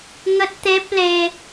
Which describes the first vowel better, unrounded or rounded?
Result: unrounded